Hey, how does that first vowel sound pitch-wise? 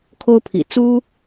high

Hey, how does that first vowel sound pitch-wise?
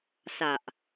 low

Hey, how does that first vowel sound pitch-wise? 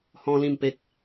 high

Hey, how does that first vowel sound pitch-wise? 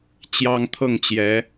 high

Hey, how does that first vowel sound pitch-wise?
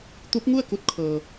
rising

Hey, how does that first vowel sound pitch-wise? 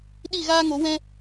falling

